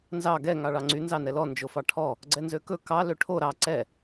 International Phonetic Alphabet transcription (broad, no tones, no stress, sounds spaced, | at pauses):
n z ɑ ɡ ɛ ŋ ɑ ɭ ɑ ŋ͡ǀ y n z ɑ n ɛ l ɔ n d͡ʒ o f ɑ ʈʰ ɔ | ɡ͡ǀ ɛ n z ø k ɵ k ɑ l ø ʈʰ o ɾ ɑ ǀ ɛ